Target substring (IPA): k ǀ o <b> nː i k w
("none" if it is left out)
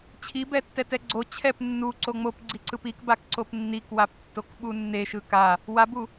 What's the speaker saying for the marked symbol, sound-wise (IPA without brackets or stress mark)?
p